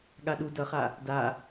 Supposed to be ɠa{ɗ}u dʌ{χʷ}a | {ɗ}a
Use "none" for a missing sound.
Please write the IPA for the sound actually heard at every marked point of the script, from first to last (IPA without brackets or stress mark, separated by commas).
ɗ, χ, d